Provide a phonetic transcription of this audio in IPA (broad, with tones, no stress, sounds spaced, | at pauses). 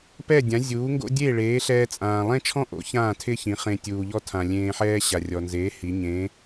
p ɛ˥˩ dʲ ã˩˥ zʲ uː˩˥ ŋ ɡ o̰˥ dʲ eː˥˩ ɭ eː˩˥ ɬ ɛː˧ t͡sʼ ãː˩ lˠ ɛ̃˥ t͡ʃʰ ɔ̃˥ ʔ o̰˩˥ ç ãː˥˩ tʰ ɪ˥ ç ĩ˩˥ χ ẽ˧ tʲ uː˩ ʎ ɔ˥ tʰ ã˩ lʲ ẽː˧ ħ ɛː˥ ɕ a˩ rʲ ɔ˩ n z eː˩˥ h i˩˥ ɲ ẽː˩˥